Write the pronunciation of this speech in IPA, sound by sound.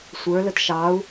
sʷə˞ lətʃɑu̯

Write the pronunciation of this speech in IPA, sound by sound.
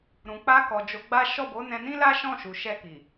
ɾũ˨k͡pa˧kɔ˨ d͡ʒo˨˦ɡ͡ba˦ ʃɔ˦˨bo˨˦nɛ̃˧ nĩ˦la˦ʃɔ̃˦˨ʃu˨ ʃɛ˧ki˨

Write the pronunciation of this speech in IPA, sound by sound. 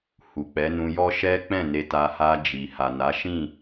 hu˨k͡pɛ˨˦nũ˧jɔ˦ ʃɛ˦k͡pɛ̃˦˨ne˧ta˧ ha˧d͡ʒi˨ha˨na˨˦ ʃĩ˦˨

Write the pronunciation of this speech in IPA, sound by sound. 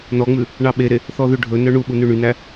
nɔŋ͡mʉ | ɳɑɓeɾe | θɔðʉɖʱɵnœ ɳuɓu nʉɳynæ

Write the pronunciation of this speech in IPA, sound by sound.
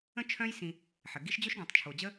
ə̃˥t͡ʃʰœ̃˦jsĩ˨ | ħə˩ ɡi˦ʃ d͡ʑɵ˥ʃɡœ̃˩tˤt͡ʃʰo˩d͡ʑə˥

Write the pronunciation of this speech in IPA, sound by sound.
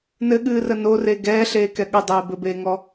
nɘɠɨːrə nore ɡɛːɬeːkɛ ɠədˤeː bɘbeːŋɔ

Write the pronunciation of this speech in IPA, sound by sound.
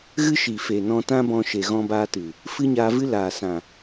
ɣɨ˦ʃi˨ fe˨nɔ̃˧tã˦bɔ̃˧ ʃe˨ɣɔ̃˧baː˧tɨ˨ | fɨ˦ɲaː˧vɨ˦ laː˨sã˨

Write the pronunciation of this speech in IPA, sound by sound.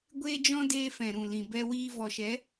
ɡʷeː˦d͡ʒɔ̃˦ deː˧fɛ̃˨ɾũ˨ lĩ˨bɛ˧wiː˧ vɔ˨ʃɛ˨˦

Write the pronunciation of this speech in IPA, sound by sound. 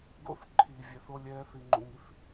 ɡo̰˧θ ǃʰiː˨ vʲɛ˨θo˧lʲ ɛː˧θi˨ŋ͡ǃṵ˨ŋi˧θ

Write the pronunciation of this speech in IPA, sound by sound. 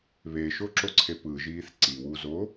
βeʃoǁoǀʰe pɯʒiːθ ǀiwuzo

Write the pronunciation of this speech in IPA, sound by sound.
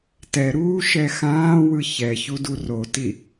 tɛɾuːʃɛ xãːwɯ çɛçudu roti

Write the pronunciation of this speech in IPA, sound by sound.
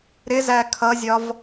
ɾɪzæ kʰʌzʲɒv

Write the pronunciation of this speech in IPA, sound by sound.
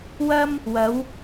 wɐ˥m | wɐ˨˧w

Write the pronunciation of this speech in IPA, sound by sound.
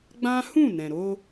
ɡ͡bã˦hũ˦˨ nɛ̃˨ɾo˧

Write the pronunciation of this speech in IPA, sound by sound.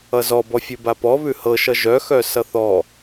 ʌzɔbɔ fʲʉbapɔ βʉhɤʃʌ ʒœxœ sʌθɔ

